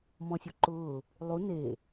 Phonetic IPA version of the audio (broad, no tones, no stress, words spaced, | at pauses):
mɔ̃sʲuǃʊː | lˠu ne